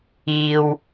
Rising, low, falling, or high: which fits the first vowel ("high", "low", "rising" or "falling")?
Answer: low